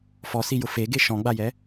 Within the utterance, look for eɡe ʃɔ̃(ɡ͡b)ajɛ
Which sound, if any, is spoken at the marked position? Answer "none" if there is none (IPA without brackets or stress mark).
ɡ͡b